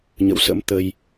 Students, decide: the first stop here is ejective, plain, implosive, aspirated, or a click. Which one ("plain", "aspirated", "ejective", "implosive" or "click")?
plain